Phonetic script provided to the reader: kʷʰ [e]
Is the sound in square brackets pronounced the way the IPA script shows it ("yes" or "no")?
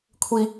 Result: no